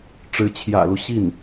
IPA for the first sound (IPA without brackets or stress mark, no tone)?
ʈ͡ʂ